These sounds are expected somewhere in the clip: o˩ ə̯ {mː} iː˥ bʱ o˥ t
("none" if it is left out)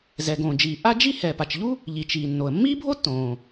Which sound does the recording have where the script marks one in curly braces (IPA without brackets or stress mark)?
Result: mː